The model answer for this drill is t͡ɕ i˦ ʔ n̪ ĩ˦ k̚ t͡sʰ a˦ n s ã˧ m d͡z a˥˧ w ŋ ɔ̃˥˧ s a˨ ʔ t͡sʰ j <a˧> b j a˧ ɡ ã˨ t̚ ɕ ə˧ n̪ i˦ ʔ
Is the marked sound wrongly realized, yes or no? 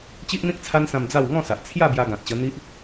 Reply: yes